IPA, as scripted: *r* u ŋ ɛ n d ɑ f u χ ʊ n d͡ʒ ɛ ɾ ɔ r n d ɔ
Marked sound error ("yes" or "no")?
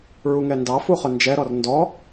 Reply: yes